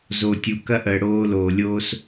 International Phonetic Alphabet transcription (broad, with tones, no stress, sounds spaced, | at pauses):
z o˨ tʲ u˨ k ɐ˦ ʔ əː˨ ɽ oː˧ l oː˨ lʲ oː˦ s